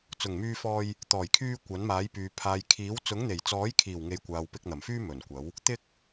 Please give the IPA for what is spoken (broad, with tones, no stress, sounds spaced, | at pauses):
t͡s ʊ˨˩ ŋ m yː˧ f ɔː˧ j | t̪ ɔː˨˩ j kʰ yː˧ kʷ ɐ˨˥ n m aː˨˥ j p yː˨ pʰ aː˨ j kʰ iː˨˥ w t͡s ʊ˨˥ ŋ n̪ e˨˩ j t͡s ɔː˨˥ j kʰ iː˨˩ w ŋ e˨˧ j kʷ aː˨ w p ɪ˧ k̚ n̪ ɐ˨˩ m f yː˥ m ɵ˨˩ n kʷ ɐ˨˥ w | t̪ ɪ˥ k̚